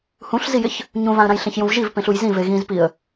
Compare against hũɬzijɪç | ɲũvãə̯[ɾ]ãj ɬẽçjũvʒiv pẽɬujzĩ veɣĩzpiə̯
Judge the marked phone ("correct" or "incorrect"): correct